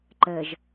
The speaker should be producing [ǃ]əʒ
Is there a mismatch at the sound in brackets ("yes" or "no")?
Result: no